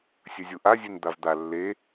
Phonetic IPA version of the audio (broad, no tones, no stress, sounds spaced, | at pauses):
sʲ ɵ zʲ u ʔ a zʲ ʉ n d̪ a v d̪ a lː e